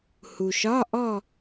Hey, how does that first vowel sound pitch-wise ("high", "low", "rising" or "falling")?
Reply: low